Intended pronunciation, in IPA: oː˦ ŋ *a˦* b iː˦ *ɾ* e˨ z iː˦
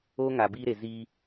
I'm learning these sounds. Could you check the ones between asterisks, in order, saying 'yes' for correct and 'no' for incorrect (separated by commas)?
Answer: no, yes